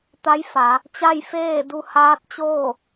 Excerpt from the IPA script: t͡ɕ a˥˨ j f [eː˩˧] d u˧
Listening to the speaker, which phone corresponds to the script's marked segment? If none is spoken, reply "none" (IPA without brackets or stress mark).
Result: eː˥˨